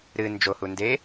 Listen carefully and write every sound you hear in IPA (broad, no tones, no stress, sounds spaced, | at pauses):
ɾ ɨ n d͡ʒ o h u n d e